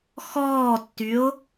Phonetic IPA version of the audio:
x ɔː tː y o̯

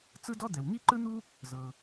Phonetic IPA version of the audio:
t͡s ɯ˥ d ɔ˥ d̪ ɛ˩ w ŋ i˥ ǃ ɯ˥ n̪ u˥ | z ɤ˩

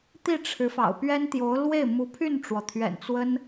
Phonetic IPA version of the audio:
t̪ i˥˩ ʈ͡ʂʰ ɻ̩˧˥ f ɑ̰˨˩ ʊ̯ p ɥ ɛ˥ n t̪ j o˧˥ ʊ̯ l w e˥˩ ɪ̯ m u˧˥ pʰ y˥˩ n ʈ͡ʂ w ɔ˩ t̪ʰ ɥ ɛ̰˨˩ n t͡s w ə˥ n

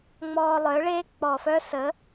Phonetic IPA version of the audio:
ŋ͡m ɔː˧ lˠ œ˩˥ ɭ eː˦˥ k͡p ɔ˨˩ f œ˦˥ s ə˩˥

